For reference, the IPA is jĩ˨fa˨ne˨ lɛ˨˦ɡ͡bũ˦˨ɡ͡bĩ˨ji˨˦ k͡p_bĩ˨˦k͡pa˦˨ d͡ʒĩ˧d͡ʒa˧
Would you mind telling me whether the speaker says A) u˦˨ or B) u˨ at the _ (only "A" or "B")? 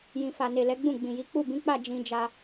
A